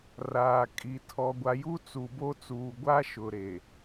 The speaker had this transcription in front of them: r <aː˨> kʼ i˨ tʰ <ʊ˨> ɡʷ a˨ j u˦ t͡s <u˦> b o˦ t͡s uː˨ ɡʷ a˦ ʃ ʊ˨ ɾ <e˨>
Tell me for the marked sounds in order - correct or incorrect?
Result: correct, incorrect: ɔ˨, incorrect: u˨, correct

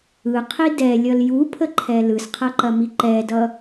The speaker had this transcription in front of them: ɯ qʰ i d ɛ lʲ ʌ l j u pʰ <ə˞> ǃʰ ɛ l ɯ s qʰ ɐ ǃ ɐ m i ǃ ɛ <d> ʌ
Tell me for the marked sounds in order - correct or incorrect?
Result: incorrect: ə, correct

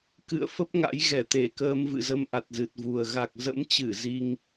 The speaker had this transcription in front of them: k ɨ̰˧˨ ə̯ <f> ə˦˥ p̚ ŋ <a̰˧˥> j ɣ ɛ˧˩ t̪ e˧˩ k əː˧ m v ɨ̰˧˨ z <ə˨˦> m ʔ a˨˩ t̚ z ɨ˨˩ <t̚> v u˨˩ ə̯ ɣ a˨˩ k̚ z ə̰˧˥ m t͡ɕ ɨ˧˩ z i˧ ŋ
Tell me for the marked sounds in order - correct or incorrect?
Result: correct, correct, incorrect: ə˧, correct

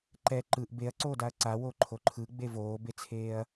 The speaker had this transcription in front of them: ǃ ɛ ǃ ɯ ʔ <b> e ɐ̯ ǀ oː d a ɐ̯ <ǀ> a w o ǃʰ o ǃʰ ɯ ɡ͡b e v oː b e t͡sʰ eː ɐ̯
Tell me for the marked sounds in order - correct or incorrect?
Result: correct, correct

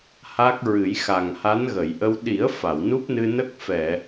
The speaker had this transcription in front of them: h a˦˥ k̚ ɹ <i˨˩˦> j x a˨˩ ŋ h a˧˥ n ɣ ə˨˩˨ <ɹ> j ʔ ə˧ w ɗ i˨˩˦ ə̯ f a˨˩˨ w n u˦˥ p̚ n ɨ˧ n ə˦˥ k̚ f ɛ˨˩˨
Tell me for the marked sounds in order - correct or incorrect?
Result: incorrect: ɨ˨˩˦, incorrect: none

